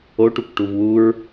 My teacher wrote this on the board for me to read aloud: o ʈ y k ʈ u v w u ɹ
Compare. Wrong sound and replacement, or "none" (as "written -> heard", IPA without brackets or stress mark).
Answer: y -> u